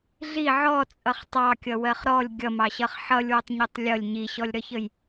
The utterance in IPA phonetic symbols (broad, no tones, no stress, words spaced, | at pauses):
ɮi ʕɔt͡sʼʌχ tˤɑkʲʌwɜχ ɾɔlʲ ɡʲʌmɑɕʌχ ħʌlʲwʊtˤɲʊtˤ lʲʌlʲ ɲiɕɔlʲɾʌçəj